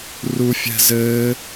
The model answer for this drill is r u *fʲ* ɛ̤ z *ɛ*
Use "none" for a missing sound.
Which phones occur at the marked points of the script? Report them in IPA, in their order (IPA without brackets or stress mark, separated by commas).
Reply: fʲ, ɘ